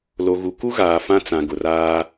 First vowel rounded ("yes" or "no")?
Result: yes